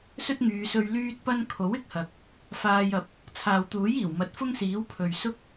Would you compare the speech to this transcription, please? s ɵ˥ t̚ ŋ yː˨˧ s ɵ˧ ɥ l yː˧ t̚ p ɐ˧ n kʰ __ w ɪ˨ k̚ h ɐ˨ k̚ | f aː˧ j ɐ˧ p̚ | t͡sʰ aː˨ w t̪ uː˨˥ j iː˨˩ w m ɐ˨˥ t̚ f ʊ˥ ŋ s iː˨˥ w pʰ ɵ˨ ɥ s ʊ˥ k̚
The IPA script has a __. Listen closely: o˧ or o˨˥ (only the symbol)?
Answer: o˨˥